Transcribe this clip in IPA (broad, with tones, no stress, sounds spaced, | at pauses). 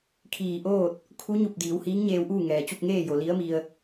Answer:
kʰ iː˧˩ ʔ oː˥˨ t̚ | kʰ u˧˥ ɲ u˧˩ p̚ d iː˩˧ w h iː˧˥ ŋ ɲ eː˧ w ʔ uː˥˨ ŋ ɛː˩ t͡ɕ u˥˨ p̚ ŋ eː˥˨ j o˩ l i˧˥ ə̯ m i˧ ə̯